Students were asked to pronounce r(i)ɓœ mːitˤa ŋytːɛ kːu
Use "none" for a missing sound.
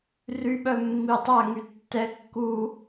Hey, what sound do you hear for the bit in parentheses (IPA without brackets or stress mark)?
y